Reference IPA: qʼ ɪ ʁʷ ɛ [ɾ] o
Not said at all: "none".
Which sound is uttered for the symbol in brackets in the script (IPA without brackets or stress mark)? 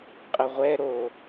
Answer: ɾ